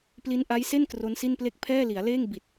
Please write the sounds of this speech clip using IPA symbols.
p l i˦˥ n ʔ a˦˥ j s e˥˩ n k r o˦˥ n s i˥˩ n p l e˥˩ k̚ pʰ ɛː˥˩ l i˩˦ a̯ l eː˥˩ ŋ b i˨˩ t̚

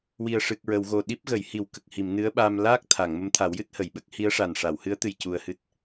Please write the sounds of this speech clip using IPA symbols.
w i˨˩ ə̯ ʂ ɨ˨˩ k̚ ɹ ə˨˩˨ w ɣ o˨˩ ɗ i˦˥ p̚ ɣ ə˨˩˦ j h i˨˩˦ w k ə˨˩ k̚ h i˨˩˨ m n ɨ˧˥ ə̯ ɓ aː˧ m l aː˦˥ k̚ t̪ʰ a˨˩˨ ŋ m ə˧˥ m t̪ʰ a˨˩˦ w j ɨ˦˥ t̚ h ə˨˩˨ j ɓ ə˦˥ k̚ h i˧˥ ə̯ ʂ a˨˩ n ʂ a˨˩˨ w h ɨ˧˥ ə̯ t̪ ɨ˧ j c u˧ ə̯ h ɨ˦˥ t̚

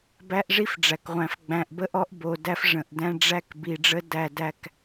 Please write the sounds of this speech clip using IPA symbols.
b æ˦ ʔ ʐ i˦ f ɖ͡ʐ æ˨ k ʁʷ æ̃˨ f ɡ͡b æ̃˨ ʔ b ə˦ ʔ ɔ˦ ʔ b o˨ d æ˦ f ʐ ə̃˨ ʔ d æ̃˦ ɖ͡ʐ æ˦ k b i˨ ɖ͡ʐ ə˦ d æ˦˨ d æ˦ k

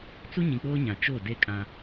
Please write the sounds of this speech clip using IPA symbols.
t͡s u˦ ɲ ĩ˨ k͡p oː˦ ɲ ã˨ t͡ʃ o˦˨ d e˦ kʼ ã˦

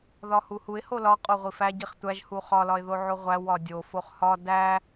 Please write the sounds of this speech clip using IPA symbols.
ð ɒ h u h u ɪ̯ h o l ɒ qʼ o ʁʷ i f æ ɟ i χ tʷ æ ʒ h u χ ɒ l ɒ ɪ̯ ð o ʕ o ʁʷ æ w ɒ dʲ o f o χ h ɒ d æ

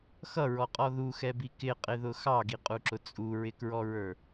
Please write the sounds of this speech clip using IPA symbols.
x ʌ ɹ ɔ qʼ ɔ ð u x ɛ b i k ɪ qʼ ɪ ð ʊ x ɑ ɡ i qʼ u ǁ ʊ t͡sʼ u ɹ ɪ k ɹ ɔ ɹ ə˞

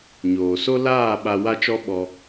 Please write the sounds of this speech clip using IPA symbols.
ɲ oː˨ s o˦ l aː˦˨ ɓ a˧ w a˦ t͡ʃ ɔ˦ ɓ ɔ˧

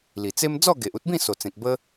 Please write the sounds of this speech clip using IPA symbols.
l i˨˩ t͡s e˦ m d͡z ɔ˥˧ ɡ e˨ ʔ u˦ t̚ b ĩ˥˧ s o˨˩ t͡s ẽ˨ k̚ b ə˦

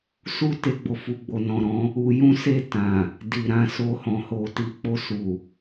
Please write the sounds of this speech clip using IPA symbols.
s u˦ t e˧ ɡ͡b o˨ f u˨ ɡ͡b o˨ n ɔ̃˨ ɾ ɔ̃˨˦ | u˧ j ũ˦ s e˦˨ t ã˨ | d i˨ ɾ ã˧ s o˧ h ɔ̃˨ h o˨ t i˨ k͡p o˧ s u˨

